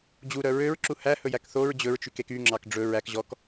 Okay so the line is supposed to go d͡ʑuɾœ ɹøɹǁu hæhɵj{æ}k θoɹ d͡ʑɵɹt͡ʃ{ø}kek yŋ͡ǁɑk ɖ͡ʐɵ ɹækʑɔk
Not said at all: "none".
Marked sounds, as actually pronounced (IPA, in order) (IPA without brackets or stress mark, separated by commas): æ, y